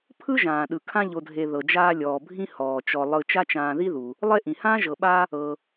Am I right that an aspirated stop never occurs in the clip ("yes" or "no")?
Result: no